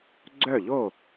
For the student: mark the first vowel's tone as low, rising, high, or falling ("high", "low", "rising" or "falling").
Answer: falling